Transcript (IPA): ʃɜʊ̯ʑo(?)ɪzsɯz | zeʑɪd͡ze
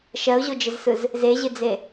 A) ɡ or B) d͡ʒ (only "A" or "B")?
B